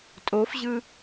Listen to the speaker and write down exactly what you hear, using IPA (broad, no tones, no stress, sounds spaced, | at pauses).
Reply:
tʼ o f ʑ ɯ